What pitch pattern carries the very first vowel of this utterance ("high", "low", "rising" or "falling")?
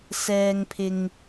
high